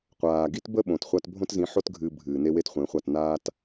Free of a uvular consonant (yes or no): no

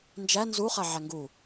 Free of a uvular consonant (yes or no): no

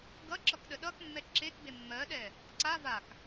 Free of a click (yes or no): no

